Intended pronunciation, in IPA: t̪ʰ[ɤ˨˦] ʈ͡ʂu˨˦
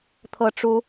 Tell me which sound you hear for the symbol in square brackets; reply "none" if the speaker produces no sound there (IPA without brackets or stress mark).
ɤ˨˦